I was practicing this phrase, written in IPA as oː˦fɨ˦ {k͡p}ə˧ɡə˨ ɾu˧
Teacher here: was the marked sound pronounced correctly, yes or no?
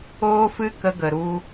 no